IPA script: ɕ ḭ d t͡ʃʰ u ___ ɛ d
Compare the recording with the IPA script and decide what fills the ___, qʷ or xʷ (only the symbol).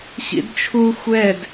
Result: xʷ